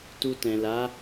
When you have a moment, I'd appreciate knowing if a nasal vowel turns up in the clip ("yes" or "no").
yes